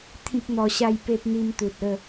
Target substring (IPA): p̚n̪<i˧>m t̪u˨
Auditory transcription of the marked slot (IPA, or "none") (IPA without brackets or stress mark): i˧